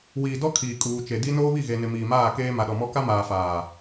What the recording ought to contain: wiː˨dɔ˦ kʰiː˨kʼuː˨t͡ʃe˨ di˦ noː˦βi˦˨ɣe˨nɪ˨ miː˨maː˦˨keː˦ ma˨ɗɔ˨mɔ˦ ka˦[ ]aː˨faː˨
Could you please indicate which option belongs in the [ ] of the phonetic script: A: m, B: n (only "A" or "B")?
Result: A